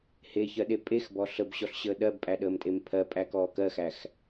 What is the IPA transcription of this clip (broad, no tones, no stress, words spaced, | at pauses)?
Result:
heçɜɗe pʼexbɔ ɬəbɕɔɬɕəː ɗɜbpʼæɗəːmtʼem pʰɜpʼækɔː kɜxæx